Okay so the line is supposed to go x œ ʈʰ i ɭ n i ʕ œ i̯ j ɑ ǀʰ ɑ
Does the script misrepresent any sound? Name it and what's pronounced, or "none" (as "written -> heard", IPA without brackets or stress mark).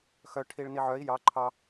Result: ǀʰ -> ǃʰ